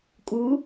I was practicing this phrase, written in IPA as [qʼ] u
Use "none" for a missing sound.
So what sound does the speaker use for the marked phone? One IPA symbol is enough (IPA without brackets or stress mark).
kʼ